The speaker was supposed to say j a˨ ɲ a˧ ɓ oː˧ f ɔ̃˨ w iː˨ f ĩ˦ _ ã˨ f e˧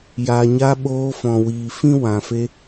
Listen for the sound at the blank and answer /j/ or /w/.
w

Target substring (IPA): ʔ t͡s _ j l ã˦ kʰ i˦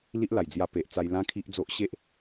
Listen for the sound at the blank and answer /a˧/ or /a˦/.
a˧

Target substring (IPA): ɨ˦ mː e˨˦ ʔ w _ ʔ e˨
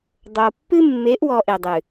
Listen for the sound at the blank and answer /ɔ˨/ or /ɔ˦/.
ɔ˨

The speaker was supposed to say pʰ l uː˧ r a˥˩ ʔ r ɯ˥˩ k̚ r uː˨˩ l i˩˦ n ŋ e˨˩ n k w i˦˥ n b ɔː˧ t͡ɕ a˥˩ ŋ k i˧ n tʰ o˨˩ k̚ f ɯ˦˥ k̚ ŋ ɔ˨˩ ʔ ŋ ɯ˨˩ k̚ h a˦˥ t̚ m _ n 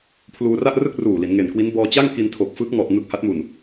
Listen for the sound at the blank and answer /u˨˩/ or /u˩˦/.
u˨˩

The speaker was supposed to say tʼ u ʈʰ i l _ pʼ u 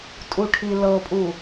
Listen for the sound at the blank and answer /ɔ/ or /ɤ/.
ɤ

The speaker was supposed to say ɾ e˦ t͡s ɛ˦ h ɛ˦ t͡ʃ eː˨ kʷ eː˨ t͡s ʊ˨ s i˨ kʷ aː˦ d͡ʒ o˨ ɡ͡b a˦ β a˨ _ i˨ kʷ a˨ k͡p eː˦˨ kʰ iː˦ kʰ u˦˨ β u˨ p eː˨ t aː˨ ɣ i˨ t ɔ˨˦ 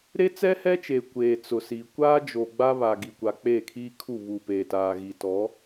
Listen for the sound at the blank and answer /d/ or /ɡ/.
ɡ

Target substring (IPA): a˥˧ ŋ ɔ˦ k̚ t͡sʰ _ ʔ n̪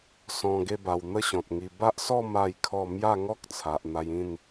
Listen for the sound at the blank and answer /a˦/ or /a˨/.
a˨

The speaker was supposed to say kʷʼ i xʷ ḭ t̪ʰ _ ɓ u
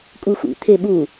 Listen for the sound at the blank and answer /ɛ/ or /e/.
e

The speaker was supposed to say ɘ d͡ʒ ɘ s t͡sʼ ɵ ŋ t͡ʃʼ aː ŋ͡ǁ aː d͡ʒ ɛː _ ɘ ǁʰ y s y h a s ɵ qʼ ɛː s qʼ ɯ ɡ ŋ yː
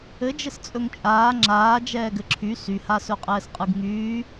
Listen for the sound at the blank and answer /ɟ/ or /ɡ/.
ɡ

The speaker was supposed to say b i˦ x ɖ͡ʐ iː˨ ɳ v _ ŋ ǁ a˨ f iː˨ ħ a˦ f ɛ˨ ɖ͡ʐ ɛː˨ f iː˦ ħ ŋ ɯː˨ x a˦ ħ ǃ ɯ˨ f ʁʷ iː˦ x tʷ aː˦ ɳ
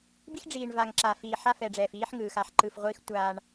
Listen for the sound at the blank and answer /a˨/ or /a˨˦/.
a˨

